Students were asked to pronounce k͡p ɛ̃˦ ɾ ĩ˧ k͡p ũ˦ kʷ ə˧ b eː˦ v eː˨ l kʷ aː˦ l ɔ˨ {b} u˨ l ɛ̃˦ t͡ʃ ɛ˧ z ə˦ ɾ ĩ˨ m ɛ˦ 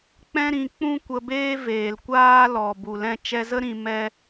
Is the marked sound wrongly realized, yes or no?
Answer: no